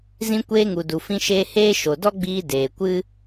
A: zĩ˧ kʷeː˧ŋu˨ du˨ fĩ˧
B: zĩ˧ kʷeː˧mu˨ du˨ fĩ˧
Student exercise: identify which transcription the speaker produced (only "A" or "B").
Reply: A